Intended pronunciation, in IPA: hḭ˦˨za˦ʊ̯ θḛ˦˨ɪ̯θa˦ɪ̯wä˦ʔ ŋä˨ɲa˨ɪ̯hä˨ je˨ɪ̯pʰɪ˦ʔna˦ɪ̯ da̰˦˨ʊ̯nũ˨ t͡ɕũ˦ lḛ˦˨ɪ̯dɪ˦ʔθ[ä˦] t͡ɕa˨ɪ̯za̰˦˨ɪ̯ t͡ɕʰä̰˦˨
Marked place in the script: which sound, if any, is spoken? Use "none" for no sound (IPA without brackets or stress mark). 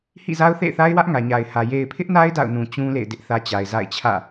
ä˦